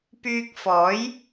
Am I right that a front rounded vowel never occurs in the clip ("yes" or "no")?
no